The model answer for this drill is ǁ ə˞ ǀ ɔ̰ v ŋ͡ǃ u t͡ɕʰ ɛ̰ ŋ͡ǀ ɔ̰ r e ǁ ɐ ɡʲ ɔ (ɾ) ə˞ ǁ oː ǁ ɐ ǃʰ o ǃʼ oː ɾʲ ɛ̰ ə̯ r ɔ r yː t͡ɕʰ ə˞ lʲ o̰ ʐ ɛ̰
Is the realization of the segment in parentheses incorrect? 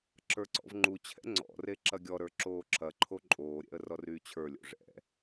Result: no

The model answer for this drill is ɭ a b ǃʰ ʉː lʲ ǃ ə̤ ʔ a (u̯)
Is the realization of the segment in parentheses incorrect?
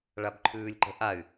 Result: yes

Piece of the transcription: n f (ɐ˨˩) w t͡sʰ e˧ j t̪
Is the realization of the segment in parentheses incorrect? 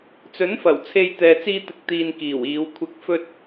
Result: no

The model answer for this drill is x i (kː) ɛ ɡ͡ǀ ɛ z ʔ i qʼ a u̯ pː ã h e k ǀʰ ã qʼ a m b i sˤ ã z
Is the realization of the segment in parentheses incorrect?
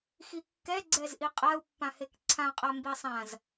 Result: no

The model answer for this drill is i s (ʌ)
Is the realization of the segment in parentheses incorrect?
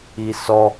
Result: yes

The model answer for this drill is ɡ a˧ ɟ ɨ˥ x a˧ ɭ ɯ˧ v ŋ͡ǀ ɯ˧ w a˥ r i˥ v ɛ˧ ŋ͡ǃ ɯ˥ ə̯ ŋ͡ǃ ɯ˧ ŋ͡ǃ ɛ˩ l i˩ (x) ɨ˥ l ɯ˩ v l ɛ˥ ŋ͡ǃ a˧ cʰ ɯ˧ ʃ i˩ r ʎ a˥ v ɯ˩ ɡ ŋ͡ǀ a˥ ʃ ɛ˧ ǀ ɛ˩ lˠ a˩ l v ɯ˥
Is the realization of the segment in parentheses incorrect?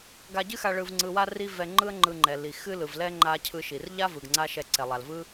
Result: no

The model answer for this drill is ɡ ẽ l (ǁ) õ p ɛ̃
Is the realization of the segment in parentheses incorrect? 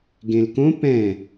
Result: yes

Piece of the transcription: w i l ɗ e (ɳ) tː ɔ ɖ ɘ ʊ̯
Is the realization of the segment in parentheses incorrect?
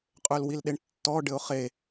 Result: no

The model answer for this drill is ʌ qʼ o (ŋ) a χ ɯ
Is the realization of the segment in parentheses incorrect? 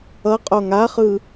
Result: no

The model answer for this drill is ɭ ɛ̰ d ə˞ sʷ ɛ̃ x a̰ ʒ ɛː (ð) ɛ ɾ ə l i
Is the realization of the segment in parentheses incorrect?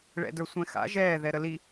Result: no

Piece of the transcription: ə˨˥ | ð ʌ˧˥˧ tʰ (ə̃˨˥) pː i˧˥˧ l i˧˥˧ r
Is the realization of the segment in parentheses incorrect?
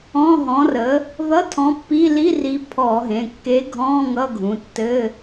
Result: yes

